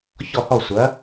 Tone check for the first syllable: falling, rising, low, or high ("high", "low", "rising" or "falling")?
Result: falling